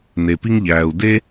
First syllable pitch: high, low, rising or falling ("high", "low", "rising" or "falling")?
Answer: low